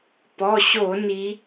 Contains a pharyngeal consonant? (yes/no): no